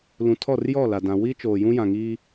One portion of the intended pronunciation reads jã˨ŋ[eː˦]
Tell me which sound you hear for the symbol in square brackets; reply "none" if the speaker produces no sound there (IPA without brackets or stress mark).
iː˦